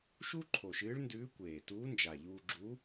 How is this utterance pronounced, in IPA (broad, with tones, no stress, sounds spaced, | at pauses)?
ʃ u˥ ǃʰ o˨˩ ʃ ɨː˧˥ ɭ n d ʉː˧˥ kʷ eː˨˩ t uː˧˥ n d͡ʒ a˨˩ ʎ uː˧ ɡ͡ǁ u˧˥